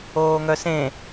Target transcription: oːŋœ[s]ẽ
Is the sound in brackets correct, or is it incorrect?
correct